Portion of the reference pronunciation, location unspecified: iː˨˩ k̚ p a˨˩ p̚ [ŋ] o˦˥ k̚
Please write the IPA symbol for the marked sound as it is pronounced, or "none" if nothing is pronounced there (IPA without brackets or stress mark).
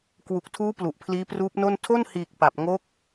ŋ